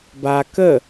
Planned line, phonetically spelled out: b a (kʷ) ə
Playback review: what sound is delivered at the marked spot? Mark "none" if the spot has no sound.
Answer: k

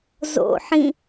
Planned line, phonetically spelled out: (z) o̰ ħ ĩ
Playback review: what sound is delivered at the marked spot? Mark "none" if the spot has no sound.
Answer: z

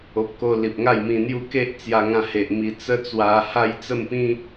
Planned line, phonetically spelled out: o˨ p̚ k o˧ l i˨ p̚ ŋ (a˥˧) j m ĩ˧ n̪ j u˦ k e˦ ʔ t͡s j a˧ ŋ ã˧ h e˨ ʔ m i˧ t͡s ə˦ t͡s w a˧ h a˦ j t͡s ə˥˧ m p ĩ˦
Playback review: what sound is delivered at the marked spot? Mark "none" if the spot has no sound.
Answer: a˥˧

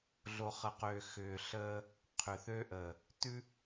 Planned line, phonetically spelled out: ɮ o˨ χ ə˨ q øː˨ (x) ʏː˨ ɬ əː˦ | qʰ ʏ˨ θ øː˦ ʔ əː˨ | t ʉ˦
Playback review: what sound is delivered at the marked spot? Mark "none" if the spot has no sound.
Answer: x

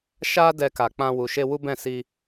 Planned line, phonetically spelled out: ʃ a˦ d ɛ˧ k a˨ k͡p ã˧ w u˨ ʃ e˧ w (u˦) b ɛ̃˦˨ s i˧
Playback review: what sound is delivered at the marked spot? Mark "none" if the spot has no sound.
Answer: u˦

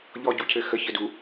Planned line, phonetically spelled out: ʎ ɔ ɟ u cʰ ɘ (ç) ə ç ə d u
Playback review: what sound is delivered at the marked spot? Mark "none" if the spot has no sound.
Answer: x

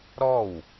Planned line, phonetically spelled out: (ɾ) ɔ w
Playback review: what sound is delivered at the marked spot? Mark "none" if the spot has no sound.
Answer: ɾ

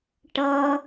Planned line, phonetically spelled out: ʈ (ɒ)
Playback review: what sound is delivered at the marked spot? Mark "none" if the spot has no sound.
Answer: ʌ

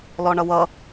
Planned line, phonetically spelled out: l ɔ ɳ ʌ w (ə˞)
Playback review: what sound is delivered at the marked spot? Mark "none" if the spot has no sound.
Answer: ʌ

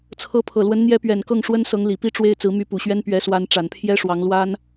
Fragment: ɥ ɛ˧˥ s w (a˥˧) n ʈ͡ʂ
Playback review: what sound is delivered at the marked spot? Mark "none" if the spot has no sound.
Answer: a˧˥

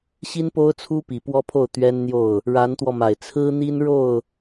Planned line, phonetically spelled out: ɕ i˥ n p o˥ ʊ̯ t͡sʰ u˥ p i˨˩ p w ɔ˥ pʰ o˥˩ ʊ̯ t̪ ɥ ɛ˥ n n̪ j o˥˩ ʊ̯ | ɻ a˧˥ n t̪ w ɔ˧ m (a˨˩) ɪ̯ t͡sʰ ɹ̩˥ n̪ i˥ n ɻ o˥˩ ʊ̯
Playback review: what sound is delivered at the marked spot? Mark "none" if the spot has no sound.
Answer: a˨˩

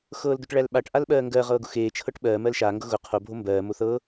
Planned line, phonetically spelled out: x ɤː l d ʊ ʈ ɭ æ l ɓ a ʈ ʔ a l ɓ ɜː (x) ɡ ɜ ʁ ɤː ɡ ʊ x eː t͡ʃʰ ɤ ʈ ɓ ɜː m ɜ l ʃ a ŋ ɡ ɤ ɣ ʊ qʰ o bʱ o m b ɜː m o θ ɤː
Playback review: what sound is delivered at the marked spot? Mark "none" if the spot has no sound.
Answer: ŋ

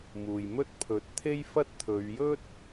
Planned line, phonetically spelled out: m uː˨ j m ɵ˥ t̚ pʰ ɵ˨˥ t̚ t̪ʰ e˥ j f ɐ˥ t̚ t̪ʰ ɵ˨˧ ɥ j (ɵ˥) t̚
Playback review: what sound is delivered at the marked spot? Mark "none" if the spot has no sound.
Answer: ɵ˥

